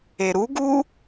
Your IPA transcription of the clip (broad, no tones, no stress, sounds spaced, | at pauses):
e ɾ u ɡ u